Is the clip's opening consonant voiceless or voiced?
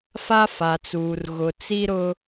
voiceless